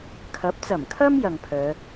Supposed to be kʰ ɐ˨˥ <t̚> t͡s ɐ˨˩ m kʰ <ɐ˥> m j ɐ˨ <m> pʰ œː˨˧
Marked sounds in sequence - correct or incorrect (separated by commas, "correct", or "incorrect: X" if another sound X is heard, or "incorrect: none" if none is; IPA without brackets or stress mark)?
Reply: incorrect: p̚, correct, incorrect: ŋ